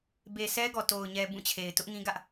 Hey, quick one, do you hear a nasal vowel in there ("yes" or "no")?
yes